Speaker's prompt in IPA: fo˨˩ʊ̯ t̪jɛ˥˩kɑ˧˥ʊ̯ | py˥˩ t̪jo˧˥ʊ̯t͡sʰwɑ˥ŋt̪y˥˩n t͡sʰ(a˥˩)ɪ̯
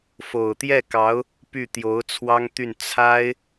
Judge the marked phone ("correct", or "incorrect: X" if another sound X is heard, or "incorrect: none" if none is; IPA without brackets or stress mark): incorrect: a˥